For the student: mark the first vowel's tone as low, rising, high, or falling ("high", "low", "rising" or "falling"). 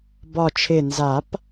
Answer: low